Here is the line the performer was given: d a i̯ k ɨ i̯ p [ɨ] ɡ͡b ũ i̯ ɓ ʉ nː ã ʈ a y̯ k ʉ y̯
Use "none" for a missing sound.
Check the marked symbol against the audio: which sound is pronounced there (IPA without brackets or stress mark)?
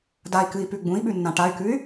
ʉ